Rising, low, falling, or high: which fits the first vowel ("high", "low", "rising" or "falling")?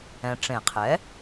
low